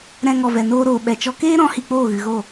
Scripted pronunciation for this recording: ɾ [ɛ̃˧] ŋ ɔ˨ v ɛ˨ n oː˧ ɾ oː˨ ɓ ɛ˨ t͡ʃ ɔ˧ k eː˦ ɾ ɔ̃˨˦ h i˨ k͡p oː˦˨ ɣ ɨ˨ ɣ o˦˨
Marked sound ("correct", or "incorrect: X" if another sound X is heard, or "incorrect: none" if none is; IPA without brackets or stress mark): correct